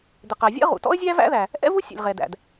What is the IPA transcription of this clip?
d̪ ɪ˩ q æ˩ vʲ ɛ̰˥ ʁ ṵ˩ t ɔ̰˥ ə̯ zʲ æ˥ v æ̰˥ ð æ˩ | ʔ ɛ̰˥ v u˥ sʲ æ̰˩ lʲ ʁ ɛ˩ d æ̰˩ d

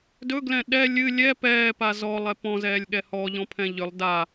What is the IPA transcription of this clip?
d ɵ ɡ l ɛ̃ ɗ ɛ lʲ ɨ lʲ ɛ p ɛː p a z ɔ lˠ ɛ p ɔ̃ z ɛː lʲ ɠ ɛ h ɔ ʎ ɔ̃ pʰ ɛ̃ ʎ ʏ lˠ d a

